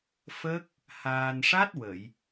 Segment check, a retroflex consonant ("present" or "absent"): present